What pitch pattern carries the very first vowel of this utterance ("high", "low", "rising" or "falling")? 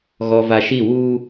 low